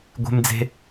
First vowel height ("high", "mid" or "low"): mid